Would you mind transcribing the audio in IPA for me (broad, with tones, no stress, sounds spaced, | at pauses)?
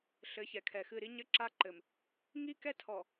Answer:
ɬ ɘ˨˦ ç ɛ˨ kʰ ɛ˨ x ɨ˦˨ ɾ i˦ ɲ ɘ˦ ǁ a˦ ǃ ɘ˨ m | ŋ i˦ k ɛ˦ tʰ ɔ˨